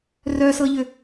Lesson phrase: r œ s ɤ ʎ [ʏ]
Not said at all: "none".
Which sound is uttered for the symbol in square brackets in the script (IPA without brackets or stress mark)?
ʏ